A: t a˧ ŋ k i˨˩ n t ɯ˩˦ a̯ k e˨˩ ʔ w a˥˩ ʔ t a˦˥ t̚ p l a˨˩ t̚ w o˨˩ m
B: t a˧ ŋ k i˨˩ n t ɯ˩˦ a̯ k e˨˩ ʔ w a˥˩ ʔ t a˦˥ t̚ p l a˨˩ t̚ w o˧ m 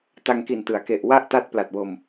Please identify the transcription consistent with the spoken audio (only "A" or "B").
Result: B